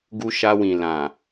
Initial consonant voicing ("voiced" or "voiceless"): voiced